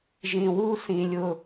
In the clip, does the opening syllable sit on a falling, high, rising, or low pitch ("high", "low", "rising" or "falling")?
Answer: low